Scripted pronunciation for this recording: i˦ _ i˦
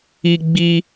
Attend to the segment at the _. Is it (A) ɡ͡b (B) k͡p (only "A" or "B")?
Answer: A